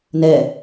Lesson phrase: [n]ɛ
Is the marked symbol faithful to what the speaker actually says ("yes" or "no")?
yes